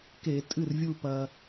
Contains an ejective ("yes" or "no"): yes